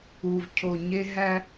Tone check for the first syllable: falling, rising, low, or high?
low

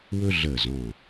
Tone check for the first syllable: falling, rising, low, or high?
high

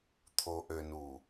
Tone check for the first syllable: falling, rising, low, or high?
low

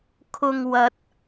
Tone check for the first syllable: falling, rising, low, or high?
low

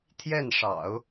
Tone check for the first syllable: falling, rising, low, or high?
falling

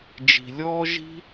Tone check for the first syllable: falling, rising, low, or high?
low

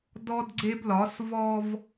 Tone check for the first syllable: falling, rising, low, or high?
high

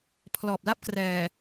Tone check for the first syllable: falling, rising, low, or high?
low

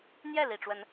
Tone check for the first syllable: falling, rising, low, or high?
falling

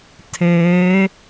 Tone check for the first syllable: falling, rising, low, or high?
rising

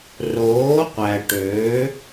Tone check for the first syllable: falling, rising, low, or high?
rising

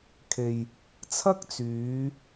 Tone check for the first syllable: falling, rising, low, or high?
low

